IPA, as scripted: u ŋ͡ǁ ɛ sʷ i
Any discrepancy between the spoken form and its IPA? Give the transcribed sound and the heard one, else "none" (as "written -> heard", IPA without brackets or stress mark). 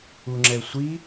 none